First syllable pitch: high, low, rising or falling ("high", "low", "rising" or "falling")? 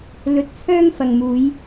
low